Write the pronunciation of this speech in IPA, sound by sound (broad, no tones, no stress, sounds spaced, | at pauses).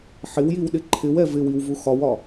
ħ ɪ w j i w ɗ ɪ ǃʰ ɪ w ɛ v ɪ w i w v u x ɒ w ɒ